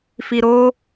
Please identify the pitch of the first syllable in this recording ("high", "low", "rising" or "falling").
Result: low